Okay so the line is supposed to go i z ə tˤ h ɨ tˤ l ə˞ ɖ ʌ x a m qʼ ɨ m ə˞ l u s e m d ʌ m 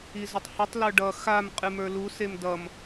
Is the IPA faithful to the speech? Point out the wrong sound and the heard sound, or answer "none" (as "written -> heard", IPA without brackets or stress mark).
none